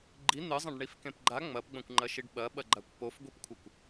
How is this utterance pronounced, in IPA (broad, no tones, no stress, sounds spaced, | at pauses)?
ɡ͡ǃ i n̪ ɨ zˤ ɐ̃ ɖ ɳ i f k ẽ p ɡ͡ǃ a ŋ͡m ɐ p ɡ͡b ɐ̃ kʷ ŋ͡ǃ ɐ ʃ i ɖ ɓ ɐ ɓ ɐ ɡ͡ǃ a kʷ p o f ɡʷ i p kʷʰ ɨ kʷ